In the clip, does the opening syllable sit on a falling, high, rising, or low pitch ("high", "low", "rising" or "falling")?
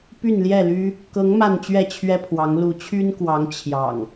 falling